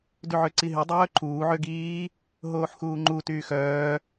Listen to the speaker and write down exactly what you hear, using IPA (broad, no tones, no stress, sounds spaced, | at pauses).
d y ʕ ø ǀ i ɦ y dˤ œː ǃʰ uː ʕ ø ɡ iː | ɦ oː ħ x uː ŋ͡ǃ u t yː x œː